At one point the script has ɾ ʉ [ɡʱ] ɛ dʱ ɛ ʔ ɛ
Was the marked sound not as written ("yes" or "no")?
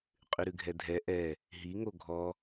no